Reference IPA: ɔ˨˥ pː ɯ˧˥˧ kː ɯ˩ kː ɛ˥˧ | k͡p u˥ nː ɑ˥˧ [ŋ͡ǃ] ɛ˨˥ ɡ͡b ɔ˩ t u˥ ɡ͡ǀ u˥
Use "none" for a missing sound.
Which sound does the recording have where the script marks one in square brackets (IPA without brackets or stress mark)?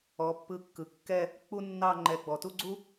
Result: ŋ͡ǃ